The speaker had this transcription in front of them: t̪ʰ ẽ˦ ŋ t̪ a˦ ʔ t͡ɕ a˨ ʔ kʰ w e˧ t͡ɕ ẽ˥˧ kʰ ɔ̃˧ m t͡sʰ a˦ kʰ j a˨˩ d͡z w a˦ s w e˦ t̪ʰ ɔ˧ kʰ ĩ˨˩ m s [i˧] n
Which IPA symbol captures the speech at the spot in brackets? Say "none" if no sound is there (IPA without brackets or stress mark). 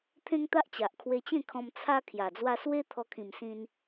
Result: ĩ˧